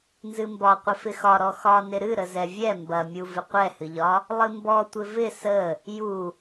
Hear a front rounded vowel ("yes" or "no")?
no